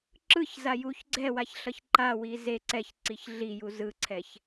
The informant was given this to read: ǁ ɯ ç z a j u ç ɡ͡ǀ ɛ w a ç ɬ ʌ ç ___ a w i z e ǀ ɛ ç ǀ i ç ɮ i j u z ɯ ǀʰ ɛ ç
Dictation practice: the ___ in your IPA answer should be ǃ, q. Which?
ǃ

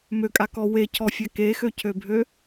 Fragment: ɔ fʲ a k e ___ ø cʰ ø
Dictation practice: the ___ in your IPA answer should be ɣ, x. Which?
x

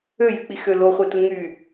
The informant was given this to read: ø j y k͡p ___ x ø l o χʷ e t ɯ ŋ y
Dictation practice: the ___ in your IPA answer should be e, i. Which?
i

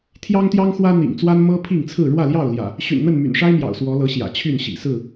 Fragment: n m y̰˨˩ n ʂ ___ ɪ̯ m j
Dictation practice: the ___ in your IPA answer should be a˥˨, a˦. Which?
a˦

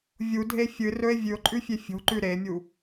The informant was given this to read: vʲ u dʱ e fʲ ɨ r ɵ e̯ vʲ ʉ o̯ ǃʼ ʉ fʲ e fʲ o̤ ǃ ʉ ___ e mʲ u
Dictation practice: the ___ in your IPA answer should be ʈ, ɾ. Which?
ɾ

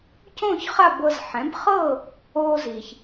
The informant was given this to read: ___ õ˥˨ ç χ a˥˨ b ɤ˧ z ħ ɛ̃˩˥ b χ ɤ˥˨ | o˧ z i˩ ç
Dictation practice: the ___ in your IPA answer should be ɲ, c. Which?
c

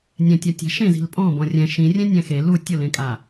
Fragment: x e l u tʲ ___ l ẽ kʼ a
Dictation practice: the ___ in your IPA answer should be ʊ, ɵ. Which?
ʊ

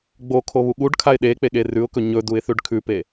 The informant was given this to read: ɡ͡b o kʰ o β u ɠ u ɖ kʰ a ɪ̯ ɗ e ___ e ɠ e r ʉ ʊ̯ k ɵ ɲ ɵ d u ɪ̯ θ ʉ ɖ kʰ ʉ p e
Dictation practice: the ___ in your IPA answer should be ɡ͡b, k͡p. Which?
k͡p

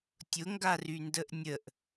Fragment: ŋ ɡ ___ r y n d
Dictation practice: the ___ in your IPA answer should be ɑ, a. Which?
a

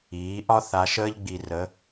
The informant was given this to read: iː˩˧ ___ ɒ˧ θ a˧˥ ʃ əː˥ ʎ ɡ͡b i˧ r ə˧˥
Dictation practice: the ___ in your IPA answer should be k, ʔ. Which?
ʔ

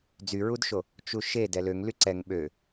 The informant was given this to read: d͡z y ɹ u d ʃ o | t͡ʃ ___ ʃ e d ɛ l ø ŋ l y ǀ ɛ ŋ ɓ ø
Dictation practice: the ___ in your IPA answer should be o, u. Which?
u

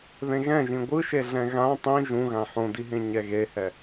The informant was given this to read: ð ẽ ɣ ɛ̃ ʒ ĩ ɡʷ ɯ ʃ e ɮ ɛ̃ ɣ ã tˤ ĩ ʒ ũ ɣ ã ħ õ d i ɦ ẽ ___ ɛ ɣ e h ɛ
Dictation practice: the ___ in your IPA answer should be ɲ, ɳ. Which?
ɲ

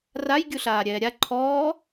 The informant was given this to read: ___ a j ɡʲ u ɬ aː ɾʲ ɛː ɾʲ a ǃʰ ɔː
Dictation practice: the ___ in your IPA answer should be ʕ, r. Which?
r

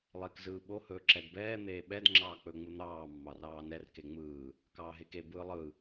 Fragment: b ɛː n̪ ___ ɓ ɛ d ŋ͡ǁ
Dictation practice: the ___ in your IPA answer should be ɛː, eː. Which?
eː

